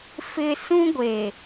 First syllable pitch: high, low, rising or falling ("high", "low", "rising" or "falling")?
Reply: high